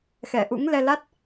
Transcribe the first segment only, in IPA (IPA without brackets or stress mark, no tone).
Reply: x